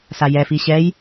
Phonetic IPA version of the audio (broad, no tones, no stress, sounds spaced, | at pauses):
s a j ɛ f i ɕ ɛ j